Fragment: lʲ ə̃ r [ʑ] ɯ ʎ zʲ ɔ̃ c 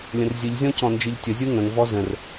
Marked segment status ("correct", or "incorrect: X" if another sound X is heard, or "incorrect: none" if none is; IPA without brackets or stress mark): incorrect: zʲ